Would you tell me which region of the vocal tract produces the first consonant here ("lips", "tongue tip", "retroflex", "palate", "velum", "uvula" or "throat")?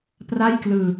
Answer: lips